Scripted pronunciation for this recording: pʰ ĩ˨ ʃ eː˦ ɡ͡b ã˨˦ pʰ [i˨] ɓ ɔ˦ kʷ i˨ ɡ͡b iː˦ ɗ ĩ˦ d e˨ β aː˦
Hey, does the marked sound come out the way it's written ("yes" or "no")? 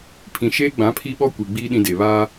no